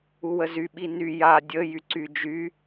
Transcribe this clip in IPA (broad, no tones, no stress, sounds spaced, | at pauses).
u w ə z y ɓ i n y j a dʲ ə j y ǀ y d͡ʒ y